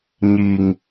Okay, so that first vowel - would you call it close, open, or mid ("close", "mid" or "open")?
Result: close